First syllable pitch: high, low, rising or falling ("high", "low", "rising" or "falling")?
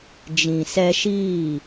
low